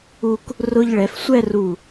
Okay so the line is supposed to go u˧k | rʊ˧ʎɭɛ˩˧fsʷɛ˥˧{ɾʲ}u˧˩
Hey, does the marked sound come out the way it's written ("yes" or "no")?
no